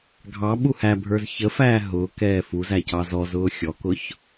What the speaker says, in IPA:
ɡʱ ɑ ɓ u h æ bʱ ə˞ z ç ə f æː ɦ ʊː k ɛː f u z æ c ɑ z ɔ z ʊː xʲ ɔ k ʊ ç

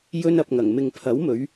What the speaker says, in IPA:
j ɵ˧ n ɐ˨ p̚ ŋ ɐ˨˩ ŋ m ɪ˨ ŋ pʰ ɐ˨˥ w m ɵ˨˧ ɥ

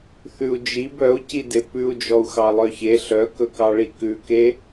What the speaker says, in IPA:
θ ʉ u̯ d͡ʒ i b œ u̯ c i d e p ʉ u̯ d͡ʒ ɔ u̯ x ɑ lˠ œ ç e ɬ œ k ɵ k ɑ ɭ i k ʉ k e

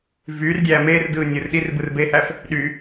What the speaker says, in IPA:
v yː r dʲ æː m eː r d ɯː nʲ ɯ r ɗ i r b ɯ r b eː h æ f | ɗ y

